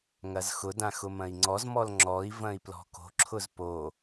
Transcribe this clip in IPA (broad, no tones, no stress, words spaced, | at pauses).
ŋɐzxʊdã xʊmɐ̃i̯ŋ͡ǀɔzmɔl ŋ͡ǁɔi̯vɐ̃i̯ plɔ̤ko̤ǁʰʊz po